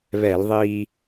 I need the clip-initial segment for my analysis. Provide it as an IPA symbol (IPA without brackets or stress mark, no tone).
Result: β